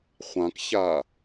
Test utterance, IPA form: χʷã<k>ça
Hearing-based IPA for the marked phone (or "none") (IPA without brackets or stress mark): k